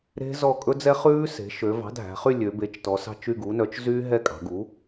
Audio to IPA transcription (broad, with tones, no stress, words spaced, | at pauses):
ɾe̤˦˥zɔ˦˨ kʼɵ˦˥d͡zɛ˦˥χʉː˦˥se̤˩˥ ʃø˩˧vɑ̤˩˥dʱæ̤˩˧χy˦˨ lʲø˩˧be˩˥t͡ʃtɔ˩˧sɑ̤˦˨t͡ʃ y˦˨ɡu˩˥nœ˩˥t͡ʃ zy˦˥ ɦɛ˦˨kʼɑ̤˩˧ɡu˩˥